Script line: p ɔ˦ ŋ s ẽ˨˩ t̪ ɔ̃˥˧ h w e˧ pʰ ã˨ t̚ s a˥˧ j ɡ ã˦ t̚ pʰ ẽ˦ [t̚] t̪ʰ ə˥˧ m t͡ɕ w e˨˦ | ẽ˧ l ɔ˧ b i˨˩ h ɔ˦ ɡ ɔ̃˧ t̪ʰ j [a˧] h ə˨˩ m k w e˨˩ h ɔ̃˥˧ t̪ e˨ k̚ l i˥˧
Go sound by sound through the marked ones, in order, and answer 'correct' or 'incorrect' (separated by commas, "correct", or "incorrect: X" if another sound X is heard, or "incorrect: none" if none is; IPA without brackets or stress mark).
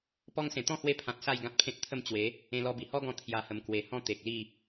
correct, correct